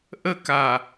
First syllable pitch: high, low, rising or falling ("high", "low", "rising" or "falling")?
high